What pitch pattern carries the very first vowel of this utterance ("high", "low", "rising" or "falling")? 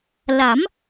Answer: rising